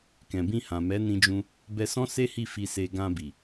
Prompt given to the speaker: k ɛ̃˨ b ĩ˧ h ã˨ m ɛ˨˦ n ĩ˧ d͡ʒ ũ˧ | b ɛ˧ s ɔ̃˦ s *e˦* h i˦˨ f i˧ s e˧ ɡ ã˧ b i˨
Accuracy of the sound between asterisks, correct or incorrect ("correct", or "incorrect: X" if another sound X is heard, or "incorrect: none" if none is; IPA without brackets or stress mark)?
correct